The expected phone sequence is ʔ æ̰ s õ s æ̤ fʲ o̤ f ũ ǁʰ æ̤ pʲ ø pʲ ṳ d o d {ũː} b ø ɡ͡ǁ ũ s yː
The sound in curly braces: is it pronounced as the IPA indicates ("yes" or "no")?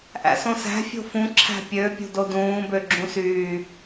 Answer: yes